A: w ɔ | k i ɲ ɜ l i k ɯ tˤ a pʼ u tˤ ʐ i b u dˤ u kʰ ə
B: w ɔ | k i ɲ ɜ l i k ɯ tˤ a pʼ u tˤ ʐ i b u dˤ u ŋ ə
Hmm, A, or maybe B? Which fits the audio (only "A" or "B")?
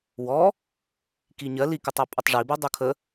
A